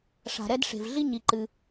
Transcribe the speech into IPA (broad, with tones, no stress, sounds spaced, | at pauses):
ʂ a̤˩ ɾ ɛ˧ d ʂ e̤˩ v ɮ i˥ ɲ i˩ ǃ ɨ˩